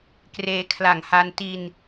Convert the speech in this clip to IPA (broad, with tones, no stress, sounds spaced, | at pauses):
k r eː˧ kʰ l a˨˩ ŋ h a˧ n t i˧ n